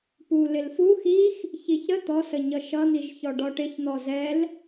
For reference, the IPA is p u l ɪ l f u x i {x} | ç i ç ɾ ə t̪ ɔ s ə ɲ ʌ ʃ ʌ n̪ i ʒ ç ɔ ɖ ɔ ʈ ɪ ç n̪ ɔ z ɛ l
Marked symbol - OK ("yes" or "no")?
yes